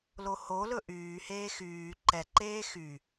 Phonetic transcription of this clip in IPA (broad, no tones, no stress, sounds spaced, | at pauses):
l o h o l ɵ ʔ yː h eː x yː ǃ ɛ ǃ eː x y